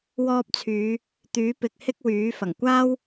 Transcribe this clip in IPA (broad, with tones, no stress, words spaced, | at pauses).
wɔː˧p̚t͡sʰyː˨˧ | t̪yː˨˥pɪ˨˥k̚ hɪ˥k̚wyː˨˥fɐ˨˩ŋ kʷaː˥w